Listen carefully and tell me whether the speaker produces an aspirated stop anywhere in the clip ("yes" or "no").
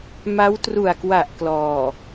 no